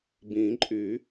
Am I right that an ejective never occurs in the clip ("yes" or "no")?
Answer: no